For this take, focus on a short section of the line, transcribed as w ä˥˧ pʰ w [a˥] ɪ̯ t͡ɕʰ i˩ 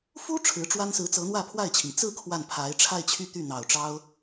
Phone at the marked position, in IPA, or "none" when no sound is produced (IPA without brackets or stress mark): a˥˩